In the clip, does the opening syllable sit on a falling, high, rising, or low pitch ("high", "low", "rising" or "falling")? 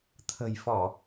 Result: low